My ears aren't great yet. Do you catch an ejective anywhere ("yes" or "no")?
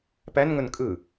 yes